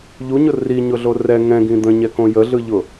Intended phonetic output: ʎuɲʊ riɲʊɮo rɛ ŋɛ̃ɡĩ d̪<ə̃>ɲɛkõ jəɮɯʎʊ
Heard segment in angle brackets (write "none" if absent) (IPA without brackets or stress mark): ə̃